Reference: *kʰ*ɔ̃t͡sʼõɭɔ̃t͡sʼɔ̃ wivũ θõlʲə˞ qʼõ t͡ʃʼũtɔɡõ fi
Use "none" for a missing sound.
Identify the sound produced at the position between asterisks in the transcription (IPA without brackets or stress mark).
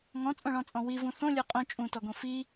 ŋ